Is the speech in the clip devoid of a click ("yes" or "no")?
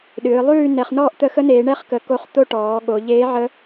yes